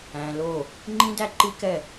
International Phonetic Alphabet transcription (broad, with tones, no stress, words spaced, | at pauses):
æ̃˨lo˦˨ | ŋ͡ǃĩ˦dæ˦ǃi˦kɛ˦˨